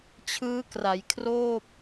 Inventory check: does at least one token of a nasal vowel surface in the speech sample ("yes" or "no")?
no